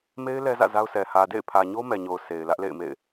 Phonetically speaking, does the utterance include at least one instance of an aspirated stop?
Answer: yes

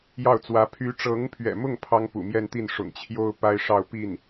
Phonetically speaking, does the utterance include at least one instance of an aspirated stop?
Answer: yes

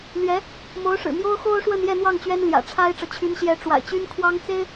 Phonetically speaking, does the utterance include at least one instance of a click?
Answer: no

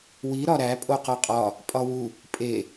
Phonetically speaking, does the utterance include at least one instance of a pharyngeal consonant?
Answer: no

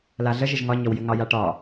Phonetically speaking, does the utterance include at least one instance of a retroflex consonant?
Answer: yes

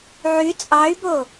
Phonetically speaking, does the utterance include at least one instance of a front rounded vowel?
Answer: yes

